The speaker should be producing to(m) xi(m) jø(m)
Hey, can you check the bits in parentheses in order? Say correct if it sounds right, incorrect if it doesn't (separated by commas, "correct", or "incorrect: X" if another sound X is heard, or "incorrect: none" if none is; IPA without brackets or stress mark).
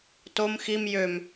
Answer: correct, correct, correct